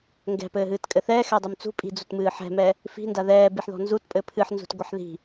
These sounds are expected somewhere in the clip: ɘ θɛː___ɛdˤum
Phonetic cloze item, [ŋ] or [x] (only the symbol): x